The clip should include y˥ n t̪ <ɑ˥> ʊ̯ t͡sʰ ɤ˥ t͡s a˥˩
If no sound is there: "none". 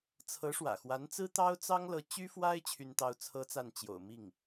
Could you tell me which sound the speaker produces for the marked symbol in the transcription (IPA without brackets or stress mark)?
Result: ɑ˥